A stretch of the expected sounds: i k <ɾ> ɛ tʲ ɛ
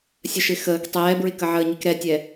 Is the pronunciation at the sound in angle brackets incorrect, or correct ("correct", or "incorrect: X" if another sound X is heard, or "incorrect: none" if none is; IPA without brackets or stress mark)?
correct